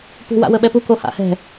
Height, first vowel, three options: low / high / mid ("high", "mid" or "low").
high